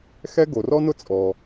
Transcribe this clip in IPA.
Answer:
xɛ˥ ɡo˩rɔ˥nʊ˥ t͡sʼɔ˩

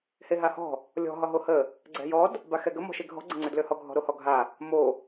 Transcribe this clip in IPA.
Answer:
heɦahɔ̤ | lʲɔ̤ ɦɒɦohə | ɡ͡ǀɛ̤jɔd | baxɛɡə mɔ̤ʃeɡʱɔ̤ ɡ͡ǀəŋ͡ǀødløhɔ ɡʱɔ̤ɾohɔɡʱa | mo

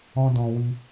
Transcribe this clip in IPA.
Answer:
ɔ̃˧dɔ̃˨wi˧

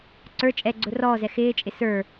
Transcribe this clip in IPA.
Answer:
ǀə˞ t͡ʃʼɛɡ͡ǀʊ rɔːzɛ xɪːt͡ʃʼɪ sə˞

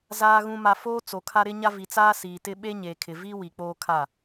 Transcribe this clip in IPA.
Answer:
zaː˨ɣũ˨ma˨ foː˦t͡so˨kʰa˦ ɾɪ˦ɲa˦vi˨ t͡saː˦siː˨tɪ˦ ɓe˦ɲeː˨kʰɪ˨viː˦ wi˨k͡poː˦kʰa˦˨

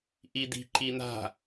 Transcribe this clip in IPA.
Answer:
ʔid̪i̤ ǃin̪a̤

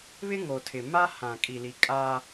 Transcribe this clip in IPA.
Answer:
βɪ˦ ŋo˨tʰɪ˨ ma˦hã˨kʼi˨ li˨kʼa˦

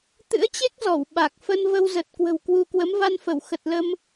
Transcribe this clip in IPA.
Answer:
t̪ɨ̰˧˥ə̯t͡ɕe˦˥k̚zɔ˧˩w ɓa˨˩k̚ fə˧nvə˧w zə˨˩t̚ kwə̤˨˩wkwu˧kwə˨˦m va˧nfə˧˩w xə˨˩t̚lə˧m

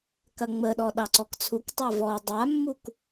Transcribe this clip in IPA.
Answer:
kɐŋ͡məɗɔ ɗɑǀɔkt͡sʰuktˤa vɔ dˤamːuk

